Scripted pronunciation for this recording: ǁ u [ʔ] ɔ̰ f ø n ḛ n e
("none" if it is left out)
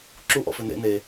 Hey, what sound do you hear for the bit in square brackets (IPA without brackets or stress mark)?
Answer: ʔ